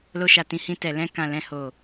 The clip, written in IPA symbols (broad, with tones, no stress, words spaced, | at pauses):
lo˧ʃa˨tĩ˨˦hĩ˧ tɛ˨lɛ̃˧ kã˨ lɛ̃˨ho˨